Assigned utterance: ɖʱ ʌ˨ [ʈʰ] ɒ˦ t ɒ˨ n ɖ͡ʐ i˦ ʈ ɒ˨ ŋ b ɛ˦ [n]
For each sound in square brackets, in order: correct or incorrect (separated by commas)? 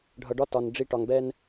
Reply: incorrect, correct